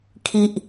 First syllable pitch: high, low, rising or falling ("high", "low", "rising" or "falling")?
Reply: high